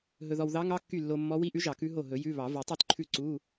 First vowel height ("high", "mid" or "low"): mid